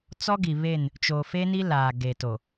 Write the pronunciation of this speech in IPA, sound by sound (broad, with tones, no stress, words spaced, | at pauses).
t͡sɔ˦ɡi˨βe˦˨n | t͡ʃo˨fe˦ni˦ laː˨ɡe˨to˨